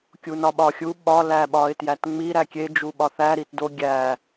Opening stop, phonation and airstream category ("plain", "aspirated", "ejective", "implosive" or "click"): plain